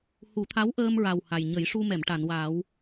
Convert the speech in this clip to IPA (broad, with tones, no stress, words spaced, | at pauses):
hu˨˩˦t̪ʰa˧˥wʔəː˧mɹa˨˩w ha˨˩j ɲə˨˩˦jʂu˧mɛ˨˩˨m ʈa˨˩˨nwa˨˩˦w